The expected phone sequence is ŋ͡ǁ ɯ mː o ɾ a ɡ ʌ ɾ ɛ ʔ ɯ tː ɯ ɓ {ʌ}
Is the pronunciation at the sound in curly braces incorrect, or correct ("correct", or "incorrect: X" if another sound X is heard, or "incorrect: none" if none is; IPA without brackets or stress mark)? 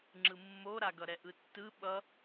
correct